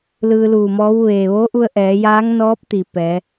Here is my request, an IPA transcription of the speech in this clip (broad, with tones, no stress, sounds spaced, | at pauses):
l ɯː˧ l uː˧˩ m ɔː˧˥ w ʋ eː˩ ʋ oː˧˥ ʔ u˧ ə̯ ʔ ɛː˩˧ j aː˧˥ ŋ n ɔː˧˥ p̚ t̪ i˧˩ p ɛː˩˧